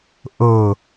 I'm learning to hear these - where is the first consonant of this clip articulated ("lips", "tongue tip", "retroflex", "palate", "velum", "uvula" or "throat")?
throat